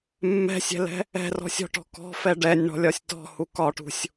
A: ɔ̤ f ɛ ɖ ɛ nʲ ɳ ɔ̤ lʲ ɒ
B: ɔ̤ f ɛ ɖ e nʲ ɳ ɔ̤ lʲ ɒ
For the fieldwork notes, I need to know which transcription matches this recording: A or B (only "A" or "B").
A